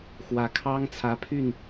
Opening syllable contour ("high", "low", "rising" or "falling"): rising